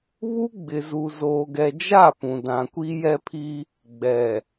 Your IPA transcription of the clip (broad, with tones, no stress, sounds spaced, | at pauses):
β u˦ ɡ͡b ɪ˨ z u˨ z oː˨ ɡ ɛ˨ d͡ʒ a˦˨ p ũ˨ d ã˨ kʷ i˦ j ɛ˦ pʰ i˦ | ɡ͡b ɛ˨